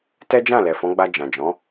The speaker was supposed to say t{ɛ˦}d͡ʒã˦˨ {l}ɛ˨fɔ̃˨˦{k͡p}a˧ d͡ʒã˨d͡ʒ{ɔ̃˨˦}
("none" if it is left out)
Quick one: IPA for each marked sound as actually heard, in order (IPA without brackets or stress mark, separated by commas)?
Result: ɛ˦, l, ɡ͡b, ɔ̃˨˦